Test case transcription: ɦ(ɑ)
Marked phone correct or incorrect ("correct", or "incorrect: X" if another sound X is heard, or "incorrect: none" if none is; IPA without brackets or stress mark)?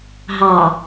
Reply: correct